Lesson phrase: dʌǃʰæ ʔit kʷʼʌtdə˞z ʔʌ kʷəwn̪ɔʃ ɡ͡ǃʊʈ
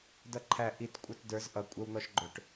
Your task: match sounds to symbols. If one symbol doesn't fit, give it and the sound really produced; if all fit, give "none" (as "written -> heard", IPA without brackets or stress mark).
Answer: kʷ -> kʷʼ